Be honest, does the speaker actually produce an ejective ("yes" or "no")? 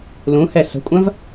yes